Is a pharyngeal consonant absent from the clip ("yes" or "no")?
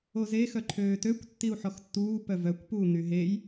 no